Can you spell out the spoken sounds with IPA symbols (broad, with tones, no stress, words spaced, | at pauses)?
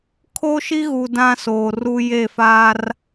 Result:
kʰo˦ʃi˦ɣu˨ dã˦soː˨ru˦ je˦˨fa˦r